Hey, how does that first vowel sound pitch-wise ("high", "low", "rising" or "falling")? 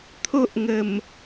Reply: high